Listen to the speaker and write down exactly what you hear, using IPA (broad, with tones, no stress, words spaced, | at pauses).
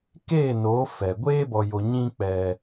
keː˦˨noː˨˦ fɛ˨ ɡʷeː˦bɔ˨jo˨ ɲĩ˦ k͡pɛ˦